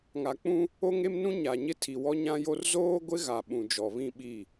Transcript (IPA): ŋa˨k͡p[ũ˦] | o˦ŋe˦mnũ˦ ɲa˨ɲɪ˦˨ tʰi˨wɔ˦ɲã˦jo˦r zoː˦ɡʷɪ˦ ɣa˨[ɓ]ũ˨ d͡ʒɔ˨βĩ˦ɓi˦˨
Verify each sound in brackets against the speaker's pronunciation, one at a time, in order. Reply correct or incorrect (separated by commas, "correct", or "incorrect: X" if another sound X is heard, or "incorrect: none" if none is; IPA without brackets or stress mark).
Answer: correct, correct